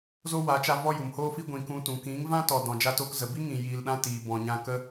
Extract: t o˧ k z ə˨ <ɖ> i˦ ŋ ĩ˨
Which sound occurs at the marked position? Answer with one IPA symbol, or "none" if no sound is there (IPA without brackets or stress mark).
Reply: b